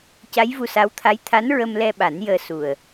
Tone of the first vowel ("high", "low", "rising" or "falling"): rising